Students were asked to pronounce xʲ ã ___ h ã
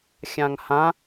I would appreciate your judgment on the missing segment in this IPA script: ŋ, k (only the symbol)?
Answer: ŋ